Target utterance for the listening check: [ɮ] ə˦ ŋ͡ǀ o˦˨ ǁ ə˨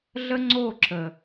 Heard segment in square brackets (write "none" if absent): ɮ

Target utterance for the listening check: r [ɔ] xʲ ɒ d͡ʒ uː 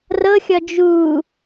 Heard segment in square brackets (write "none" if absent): ɤ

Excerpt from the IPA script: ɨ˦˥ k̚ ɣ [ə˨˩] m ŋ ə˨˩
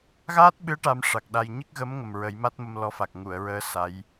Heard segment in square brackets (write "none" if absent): ə˧˥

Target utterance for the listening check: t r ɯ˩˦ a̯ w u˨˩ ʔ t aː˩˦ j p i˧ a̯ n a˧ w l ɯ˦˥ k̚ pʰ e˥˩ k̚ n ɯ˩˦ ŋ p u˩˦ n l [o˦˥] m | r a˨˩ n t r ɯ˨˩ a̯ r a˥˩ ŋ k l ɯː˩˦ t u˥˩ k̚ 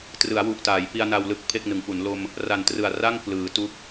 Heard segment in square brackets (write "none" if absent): o˧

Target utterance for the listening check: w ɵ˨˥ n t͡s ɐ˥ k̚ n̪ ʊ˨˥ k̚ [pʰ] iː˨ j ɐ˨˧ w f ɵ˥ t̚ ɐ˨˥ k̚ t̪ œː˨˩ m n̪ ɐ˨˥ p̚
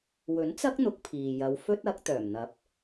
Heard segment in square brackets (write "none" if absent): pʰ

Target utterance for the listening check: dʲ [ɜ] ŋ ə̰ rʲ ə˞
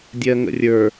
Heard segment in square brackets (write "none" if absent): ɜ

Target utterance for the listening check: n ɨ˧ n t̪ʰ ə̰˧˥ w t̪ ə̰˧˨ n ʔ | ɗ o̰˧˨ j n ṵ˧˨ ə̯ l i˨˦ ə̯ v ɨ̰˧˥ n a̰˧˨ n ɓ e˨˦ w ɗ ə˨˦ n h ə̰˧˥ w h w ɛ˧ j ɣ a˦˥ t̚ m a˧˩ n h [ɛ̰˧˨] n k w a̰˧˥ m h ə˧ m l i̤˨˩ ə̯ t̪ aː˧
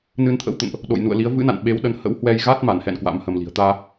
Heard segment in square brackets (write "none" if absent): ɛ̰˧˨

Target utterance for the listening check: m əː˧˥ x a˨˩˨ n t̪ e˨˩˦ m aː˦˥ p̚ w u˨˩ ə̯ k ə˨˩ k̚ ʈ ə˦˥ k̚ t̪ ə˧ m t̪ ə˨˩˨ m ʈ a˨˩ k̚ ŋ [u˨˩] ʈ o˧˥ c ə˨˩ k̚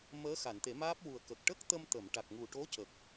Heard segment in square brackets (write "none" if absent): u˨˩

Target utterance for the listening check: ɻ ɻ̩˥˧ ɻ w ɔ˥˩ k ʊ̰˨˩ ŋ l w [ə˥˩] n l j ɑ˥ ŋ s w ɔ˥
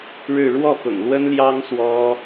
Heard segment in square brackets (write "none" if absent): ə˥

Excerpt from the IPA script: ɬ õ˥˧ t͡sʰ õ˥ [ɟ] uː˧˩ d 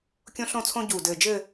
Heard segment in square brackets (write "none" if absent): ɟ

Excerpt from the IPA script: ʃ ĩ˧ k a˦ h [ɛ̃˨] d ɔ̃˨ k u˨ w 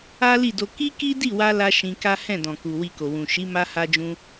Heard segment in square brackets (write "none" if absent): ɛ̃˦˨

